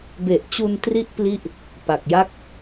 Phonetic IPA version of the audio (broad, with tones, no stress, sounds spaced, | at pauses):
b e˨˩ ʔ t͡ɕ u˧ n t r i˦˥ ʔ p l i˥˩ ʔ | p a˨˩ k̚ j a˥˩ k̚